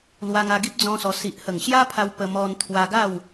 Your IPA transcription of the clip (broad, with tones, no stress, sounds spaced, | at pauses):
l w a˧ ŋ a˧ ɡ i˦ p̚ d͡z ɔ̃˦ s ɔ˧ s i˨ ʔ h ə˨˩ ŋ ɕ j a˦ pʰ a˧ w p ə˧ m ɔ˧ n t̪ʰ w a˧ ɡ a˥˧ w